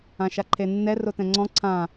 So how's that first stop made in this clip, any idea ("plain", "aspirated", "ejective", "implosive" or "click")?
click